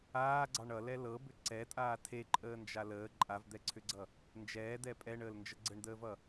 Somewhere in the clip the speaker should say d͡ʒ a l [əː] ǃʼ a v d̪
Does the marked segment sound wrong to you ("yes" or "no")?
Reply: no